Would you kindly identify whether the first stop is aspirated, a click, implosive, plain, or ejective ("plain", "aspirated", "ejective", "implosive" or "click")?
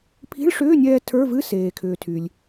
aspirated